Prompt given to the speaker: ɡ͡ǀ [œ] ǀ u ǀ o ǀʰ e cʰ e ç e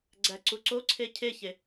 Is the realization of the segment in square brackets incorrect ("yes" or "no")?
yes